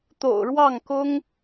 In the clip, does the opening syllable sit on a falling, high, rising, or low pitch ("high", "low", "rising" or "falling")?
low